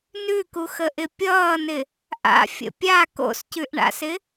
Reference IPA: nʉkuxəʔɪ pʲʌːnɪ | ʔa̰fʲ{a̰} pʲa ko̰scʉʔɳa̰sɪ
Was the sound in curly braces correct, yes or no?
no